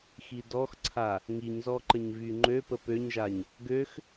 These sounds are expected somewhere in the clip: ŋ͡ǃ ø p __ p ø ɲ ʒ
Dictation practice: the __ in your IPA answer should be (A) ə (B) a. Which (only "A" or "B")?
A